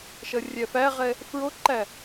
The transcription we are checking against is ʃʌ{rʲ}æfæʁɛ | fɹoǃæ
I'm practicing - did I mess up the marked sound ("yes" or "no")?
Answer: no